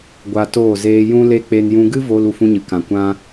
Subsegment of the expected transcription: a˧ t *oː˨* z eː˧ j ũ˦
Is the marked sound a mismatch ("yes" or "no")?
yes